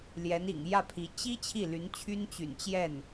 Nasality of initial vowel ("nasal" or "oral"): oral